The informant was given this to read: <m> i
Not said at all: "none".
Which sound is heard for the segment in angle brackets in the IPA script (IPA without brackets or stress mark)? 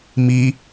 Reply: m